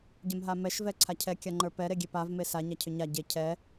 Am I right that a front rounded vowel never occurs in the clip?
no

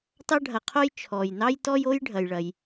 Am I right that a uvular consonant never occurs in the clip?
no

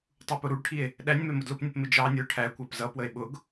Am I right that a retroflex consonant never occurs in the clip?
no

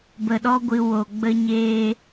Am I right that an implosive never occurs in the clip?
no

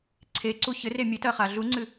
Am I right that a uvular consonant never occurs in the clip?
no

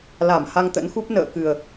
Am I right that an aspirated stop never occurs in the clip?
yes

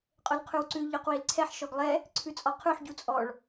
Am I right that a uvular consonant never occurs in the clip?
no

